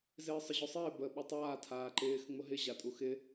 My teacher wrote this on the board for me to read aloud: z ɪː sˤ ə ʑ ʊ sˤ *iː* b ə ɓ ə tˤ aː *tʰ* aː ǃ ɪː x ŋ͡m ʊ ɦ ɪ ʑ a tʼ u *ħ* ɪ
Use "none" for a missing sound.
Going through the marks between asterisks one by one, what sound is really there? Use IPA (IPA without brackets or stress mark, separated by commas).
ɪː, tʰ, x